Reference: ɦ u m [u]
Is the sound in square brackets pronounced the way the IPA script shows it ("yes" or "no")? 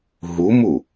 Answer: yes